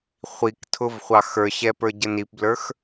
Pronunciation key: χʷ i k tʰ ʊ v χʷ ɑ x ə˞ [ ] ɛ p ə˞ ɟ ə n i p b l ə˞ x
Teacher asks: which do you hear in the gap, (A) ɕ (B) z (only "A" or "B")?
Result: A